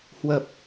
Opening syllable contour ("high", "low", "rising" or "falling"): low